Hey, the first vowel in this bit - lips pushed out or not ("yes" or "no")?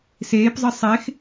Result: no